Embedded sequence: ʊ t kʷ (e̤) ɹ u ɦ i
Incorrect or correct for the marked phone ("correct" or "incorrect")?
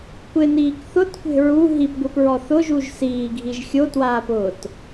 correct